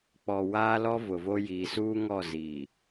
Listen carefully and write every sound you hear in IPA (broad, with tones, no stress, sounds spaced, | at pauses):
k͡p ɔ˨ w aː˦ l ɔ˦ v ʊ˨ v o˦ j iː˨ s uː˦ ŋ ɔ˦˨ z iː˨